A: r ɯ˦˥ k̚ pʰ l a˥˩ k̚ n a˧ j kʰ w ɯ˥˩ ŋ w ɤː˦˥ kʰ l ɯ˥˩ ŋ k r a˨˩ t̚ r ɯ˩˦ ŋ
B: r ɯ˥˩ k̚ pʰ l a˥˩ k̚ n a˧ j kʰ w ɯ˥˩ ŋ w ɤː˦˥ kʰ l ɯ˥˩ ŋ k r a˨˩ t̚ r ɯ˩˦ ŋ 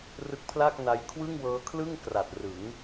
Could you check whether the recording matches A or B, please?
A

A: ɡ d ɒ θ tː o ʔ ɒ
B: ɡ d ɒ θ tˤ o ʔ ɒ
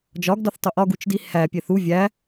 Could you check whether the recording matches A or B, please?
B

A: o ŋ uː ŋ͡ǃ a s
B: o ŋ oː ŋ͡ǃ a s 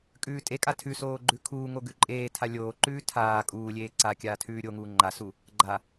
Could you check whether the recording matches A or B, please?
A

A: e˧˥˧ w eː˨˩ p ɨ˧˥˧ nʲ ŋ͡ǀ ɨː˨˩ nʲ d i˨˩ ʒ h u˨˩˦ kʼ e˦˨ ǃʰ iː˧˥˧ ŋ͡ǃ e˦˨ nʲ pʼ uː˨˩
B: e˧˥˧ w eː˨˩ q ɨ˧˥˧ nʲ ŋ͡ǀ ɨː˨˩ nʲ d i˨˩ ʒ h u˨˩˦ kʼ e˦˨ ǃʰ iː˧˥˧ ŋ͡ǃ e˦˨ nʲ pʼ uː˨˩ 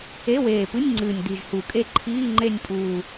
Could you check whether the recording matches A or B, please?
A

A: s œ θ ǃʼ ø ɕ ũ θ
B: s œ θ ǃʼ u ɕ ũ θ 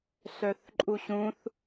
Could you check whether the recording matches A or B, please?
B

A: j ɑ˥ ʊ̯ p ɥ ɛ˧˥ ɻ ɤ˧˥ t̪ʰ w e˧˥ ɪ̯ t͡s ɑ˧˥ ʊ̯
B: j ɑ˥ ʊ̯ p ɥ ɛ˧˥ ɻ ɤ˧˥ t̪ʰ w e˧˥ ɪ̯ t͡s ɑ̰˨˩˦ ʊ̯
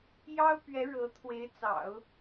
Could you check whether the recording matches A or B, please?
B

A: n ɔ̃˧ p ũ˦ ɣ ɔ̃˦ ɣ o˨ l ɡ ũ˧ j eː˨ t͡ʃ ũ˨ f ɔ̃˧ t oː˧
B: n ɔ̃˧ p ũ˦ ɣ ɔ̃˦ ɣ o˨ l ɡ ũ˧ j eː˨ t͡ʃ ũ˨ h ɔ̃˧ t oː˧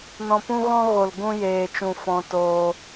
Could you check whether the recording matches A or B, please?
A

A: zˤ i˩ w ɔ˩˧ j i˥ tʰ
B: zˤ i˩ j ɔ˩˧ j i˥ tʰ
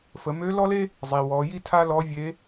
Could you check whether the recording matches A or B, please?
A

